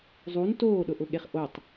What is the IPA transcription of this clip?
zˤ u n t oː ɗ ʊ ʔ ʊ ɠ e χ ʔ o tˤ

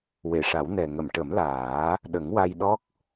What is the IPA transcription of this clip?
w e˨˩˨ ʂ a˨˩˦ w n ɛ˨˩ ŋ ə˨˩˨ m ʈ ə˨˩˦ m l aː˨˩˦ | ɗ ə˨˩˦ ŋ w a˧ j ɗ ɔ˦˥ k̚

